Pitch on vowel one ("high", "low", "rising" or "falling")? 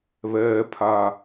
low